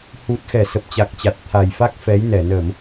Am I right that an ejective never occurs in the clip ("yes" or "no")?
yes